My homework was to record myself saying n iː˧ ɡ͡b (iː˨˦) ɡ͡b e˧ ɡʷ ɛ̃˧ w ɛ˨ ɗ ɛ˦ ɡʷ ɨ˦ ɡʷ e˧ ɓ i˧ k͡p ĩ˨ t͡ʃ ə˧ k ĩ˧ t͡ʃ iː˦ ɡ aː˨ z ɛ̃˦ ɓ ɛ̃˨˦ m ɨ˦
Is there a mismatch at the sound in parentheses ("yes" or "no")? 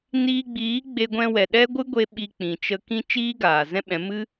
no